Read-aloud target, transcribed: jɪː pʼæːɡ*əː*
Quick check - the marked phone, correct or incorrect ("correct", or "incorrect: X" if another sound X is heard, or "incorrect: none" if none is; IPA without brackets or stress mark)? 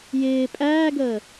correct